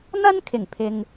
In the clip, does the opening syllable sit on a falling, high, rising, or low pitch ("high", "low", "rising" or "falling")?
high